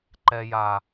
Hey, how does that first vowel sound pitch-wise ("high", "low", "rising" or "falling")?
high